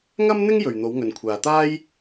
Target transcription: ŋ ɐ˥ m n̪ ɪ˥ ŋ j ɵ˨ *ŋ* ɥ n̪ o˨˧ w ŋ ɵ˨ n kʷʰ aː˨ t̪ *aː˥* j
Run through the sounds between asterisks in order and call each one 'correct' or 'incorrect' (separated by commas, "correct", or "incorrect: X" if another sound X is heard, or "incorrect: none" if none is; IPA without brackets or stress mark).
incorrect: none, correct